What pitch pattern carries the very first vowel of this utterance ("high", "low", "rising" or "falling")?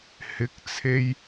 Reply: rising